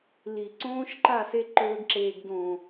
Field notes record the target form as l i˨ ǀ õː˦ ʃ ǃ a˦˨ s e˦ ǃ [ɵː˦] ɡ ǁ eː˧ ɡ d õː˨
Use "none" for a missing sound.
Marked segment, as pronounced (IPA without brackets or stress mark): ɵː˦